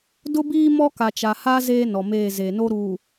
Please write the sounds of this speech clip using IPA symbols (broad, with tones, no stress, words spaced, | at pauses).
dʊ˦ biː˦mɔ˦ ka˨t͡ʃa˨ha˦ zeː˦nɔ˨meː˦˨ zeː˨no˦ ɾuː˨